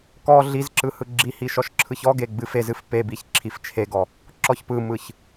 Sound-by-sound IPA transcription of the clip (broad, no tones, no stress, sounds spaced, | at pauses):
k ɔ ɮ i z ǁ ɯ h ɯ ɡ͡ǁ i h i ʃ ɔ ʃ ǁʰ ɯ ç ɔ ɡ e ɡ͡b ɨ f e z ɨ f p e b i ç ǁʰ i f t͡ʃʰ e ɡ ɔ | ǁ ɔ ç p ɯ m ɯ ç